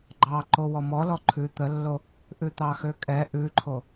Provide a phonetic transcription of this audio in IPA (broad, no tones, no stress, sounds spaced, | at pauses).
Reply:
ɡ͡ǃ ɑ ǃ o w ɔ m ɔ l ɔ ǃʰ ʉ t̪ ə lː o | ʔ ʉ t̪ ɑ x ø kʼ ɛ ʔ ʉ ǃʰ o